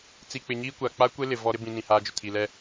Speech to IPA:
t͡s i˨ k͡p ɪ˨ ɲ iː˦ kʷ a˨ k͡p a˦ kʷ e˦ l ɪ˨ v ɔ˦ ɾ ɪ˦ b ĩ˨ n ĩ˨ h aː˦ d͡ʒ ʊ˨ tʰ i˨ l ɛ˦

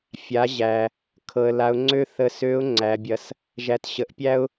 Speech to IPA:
fʲ a˩˧ ʑ æ˩ | kʰ ɤ˩ ə̯ l a˩˧ ʊ̯ ŋ͡ǀ ø˥ θ ə˧ s ø˧˥ ʊ̯ ŋ͡ǀ æ˩˧ bʲ ɐ˧ s | ʒ æ˩˧ t ɕ ə˩˧ ʔ pʲ æ˥ ʊ̯

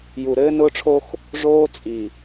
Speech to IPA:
j u˨ ɾ ɘː˦ n ʊː˦ ʈ͡ʂʰ o˦ x | ʐ oː˦ t͡sʼ i˨

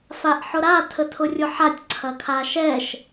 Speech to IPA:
f a ʔ ħ ʊ ɾ a tʰ ə tʰ ʊ rʲ ʊ ħ a tʲ ǀʰ ɐ kʰ a ʃ ɛ ʃ

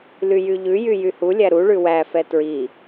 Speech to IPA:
l y j y ʎ ʉ j y j y h u lʲ æ ɾ u ɭ ʉ w æ f ɛ t ɹ i

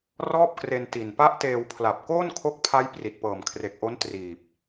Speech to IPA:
r ɔː˥˩ p̚ k r e˧ n t i˨˩ n p a˦˥ ʔ t eː˧ w pʰ l a˨˩ p̚ k oː˥˩ n kʰ o˦˥ k̚ pʰ a˦˥ j p r i˨˩ t̚ p ɤː˨˩ m kʰ r e˨˩ k̚ ʔ o˦˥ n t r iː˨˩ p̚

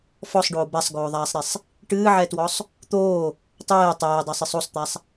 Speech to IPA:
f ɔ sˤ ɖ oː b a sˤ ɡ oː ðˤ aː sˤ ɾ ɛ sˤ | ʈ ɨː ʕ ɛ t w ɔ sˤ | t̪ oː | tˤ ɛː tˤ ɛː dˤ a sˤ ɨ sˤ o sˤ t̪ a sˤ

